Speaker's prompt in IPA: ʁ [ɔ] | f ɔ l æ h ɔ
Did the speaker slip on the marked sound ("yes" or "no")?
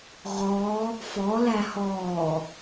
no